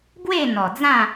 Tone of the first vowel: falling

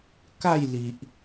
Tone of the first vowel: falling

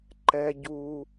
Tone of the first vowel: high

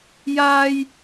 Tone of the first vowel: high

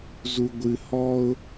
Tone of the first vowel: low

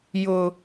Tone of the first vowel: high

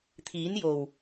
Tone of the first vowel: rising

